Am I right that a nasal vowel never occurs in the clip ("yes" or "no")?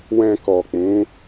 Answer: no